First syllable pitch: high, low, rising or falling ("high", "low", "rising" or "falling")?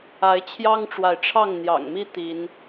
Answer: rising